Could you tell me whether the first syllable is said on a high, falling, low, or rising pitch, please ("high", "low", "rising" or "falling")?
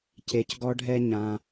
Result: low